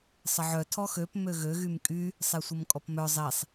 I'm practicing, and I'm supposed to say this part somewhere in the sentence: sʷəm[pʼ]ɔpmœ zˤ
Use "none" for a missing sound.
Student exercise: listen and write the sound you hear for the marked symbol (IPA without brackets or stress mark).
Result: kʼ